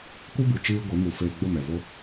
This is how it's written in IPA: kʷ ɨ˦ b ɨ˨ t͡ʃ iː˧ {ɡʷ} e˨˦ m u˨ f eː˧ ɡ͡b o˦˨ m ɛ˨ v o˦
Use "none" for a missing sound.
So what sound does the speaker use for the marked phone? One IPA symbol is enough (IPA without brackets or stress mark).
ɡʷ